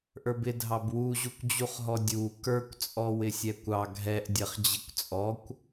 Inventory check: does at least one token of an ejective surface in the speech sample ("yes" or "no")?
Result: yes